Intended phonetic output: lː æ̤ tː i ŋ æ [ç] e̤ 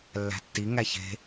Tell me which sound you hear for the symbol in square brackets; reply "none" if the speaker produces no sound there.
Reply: ç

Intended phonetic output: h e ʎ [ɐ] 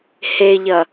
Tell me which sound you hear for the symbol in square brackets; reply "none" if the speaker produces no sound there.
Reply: ɐ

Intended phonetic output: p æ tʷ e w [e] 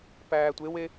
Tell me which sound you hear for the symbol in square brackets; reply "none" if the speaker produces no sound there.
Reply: e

